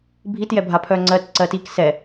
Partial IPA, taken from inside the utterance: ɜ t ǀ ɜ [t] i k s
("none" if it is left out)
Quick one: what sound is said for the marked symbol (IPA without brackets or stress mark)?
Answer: t